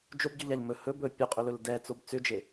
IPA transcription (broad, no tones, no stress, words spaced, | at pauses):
d͡ʒobɟʏʎaʎ mɵ hɵ bɵ pʲuqʼʏlɵl dɛt͡sob t͡sʏd͡ʒe